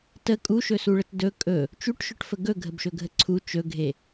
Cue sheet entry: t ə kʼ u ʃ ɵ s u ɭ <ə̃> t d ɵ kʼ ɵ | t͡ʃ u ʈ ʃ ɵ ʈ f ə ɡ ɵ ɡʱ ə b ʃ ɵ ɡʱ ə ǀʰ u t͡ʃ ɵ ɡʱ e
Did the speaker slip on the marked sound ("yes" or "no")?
yes